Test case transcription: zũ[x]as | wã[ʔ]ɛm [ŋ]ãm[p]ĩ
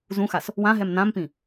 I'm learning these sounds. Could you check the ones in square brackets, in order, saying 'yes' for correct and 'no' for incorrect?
yes, no, no, yes

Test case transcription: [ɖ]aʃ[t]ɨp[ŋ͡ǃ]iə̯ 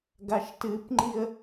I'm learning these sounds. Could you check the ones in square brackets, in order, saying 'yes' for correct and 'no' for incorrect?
no, yes, yes

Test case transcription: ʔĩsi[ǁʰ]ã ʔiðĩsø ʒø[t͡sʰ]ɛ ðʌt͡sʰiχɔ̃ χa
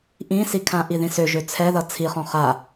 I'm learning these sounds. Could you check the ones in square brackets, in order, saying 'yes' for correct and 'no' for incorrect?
no, yes

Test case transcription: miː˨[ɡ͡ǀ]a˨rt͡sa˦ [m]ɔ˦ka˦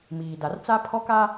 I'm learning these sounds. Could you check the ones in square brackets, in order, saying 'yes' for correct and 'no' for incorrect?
no, no

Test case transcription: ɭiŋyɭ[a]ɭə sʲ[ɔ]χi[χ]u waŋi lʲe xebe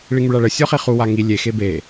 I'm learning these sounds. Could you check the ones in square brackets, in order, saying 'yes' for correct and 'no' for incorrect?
yes, yes, yes

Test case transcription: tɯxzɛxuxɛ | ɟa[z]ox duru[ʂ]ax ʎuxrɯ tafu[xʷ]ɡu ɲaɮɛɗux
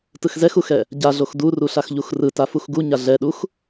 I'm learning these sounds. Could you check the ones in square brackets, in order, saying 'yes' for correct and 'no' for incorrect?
no, no, no

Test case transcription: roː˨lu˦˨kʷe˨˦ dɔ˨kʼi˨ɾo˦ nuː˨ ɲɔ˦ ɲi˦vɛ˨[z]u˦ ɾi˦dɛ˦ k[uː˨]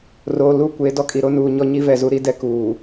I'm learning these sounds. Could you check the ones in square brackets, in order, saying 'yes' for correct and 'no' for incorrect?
yes, yes

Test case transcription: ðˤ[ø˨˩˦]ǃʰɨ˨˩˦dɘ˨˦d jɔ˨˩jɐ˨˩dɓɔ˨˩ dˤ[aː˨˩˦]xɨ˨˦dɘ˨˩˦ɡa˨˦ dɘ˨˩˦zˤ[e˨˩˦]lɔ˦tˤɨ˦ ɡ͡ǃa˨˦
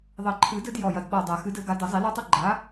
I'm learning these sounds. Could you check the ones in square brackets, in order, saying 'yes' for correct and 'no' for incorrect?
no, no, no

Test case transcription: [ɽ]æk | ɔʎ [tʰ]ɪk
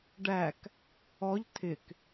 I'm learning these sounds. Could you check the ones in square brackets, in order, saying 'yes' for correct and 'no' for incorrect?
no, yes

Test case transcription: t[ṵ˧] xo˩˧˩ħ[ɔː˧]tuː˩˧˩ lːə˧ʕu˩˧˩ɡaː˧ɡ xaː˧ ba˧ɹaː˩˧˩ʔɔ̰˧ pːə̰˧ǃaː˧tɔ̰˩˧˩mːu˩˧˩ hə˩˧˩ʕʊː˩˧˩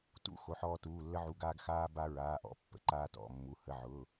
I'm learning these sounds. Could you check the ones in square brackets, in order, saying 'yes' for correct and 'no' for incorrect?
yes, yes

